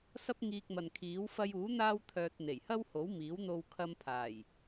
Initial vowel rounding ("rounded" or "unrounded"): unrounded